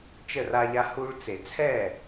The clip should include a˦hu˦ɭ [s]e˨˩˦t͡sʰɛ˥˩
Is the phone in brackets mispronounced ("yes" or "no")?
yes